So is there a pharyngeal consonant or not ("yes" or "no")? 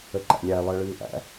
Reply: no